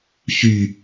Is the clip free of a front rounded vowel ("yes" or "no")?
no